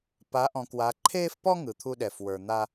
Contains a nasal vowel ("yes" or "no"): yes